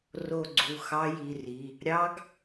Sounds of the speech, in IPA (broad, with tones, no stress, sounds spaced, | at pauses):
r o˦˨ ɡ͡ǀ u˩˧˩ x ɑ˦˥ j i˩˧˩ r i˩˧˩ | ɾʲ ɑ˦˥ ɡ